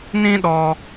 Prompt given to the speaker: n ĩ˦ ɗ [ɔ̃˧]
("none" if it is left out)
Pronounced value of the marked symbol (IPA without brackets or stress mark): ɔ˧